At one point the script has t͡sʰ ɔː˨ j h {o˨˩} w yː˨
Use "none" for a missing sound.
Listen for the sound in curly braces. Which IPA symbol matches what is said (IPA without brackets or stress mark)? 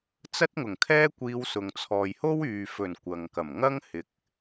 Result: o˥